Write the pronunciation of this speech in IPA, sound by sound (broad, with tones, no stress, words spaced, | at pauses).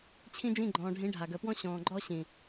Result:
t͡ɕʰĩ˦d͡ʒĩ˦˨ɡ͡ǃɔ̃ː˨ ɖʱĩ˨˦ ɖʱa˨ɡəː˨pwɔ̃˦ ɕɔ̃ː˨ ɡ͡ǃɔ˦ ɕĩ˨